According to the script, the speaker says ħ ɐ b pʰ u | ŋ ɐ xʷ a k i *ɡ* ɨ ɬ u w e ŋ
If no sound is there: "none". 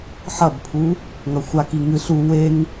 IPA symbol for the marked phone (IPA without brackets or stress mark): ŋ